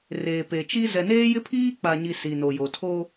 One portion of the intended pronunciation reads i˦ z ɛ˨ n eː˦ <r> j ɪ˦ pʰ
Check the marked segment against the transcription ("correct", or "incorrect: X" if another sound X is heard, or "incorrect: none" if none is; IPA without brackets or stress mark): incorrect: none